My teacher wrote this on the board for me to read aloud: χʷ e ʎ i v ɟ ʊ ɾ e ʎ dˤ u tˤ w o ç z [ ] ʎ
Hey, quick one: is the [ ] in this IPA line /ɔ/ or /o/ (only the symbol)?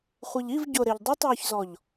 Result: ɔ